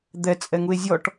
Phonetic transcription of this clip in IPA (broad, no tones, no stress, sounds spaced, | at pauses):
d̪ ɛ t͡sʼ ɛ ŋ u e̯ zʲ ɔ ʈ